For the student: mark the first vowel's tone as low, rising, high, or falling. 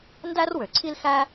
high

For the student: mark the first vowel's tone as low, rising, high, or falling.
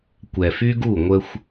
low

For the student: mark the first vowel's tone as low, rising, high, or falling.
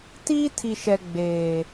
high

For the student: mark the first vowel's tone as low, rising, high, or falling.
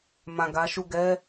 low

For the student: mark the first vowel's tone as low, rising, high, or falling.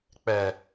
low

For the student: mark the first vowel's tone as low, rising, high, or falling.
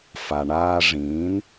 low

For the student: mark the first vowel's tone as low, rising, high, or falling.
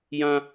high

